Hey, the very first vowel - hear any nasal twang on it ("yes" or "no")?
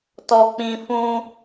no